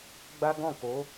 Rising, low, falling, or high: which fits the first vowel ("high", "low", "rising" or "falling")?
high